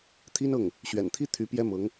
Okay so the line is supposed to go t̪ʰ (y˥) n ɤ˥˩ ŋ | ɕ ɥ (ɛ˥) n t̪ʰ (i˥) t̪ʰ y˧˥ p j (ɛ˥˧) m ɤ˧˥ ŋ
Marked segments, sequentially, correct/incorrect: incorrect, incorrect, correct, incorrect

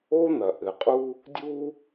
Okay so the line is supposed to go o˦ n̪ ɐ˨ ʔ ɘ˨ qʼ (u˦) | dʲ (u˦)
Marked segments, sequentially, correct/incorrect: correct, correct

